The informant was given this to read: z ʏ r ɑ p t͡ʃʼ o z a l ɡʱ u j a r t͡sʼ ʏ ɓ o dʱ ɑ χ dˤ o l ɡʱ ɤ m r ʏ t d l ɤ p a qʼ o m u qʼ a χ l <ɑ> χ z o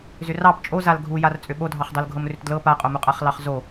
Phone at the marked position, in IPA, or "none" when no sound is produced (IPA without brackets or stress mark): ɑ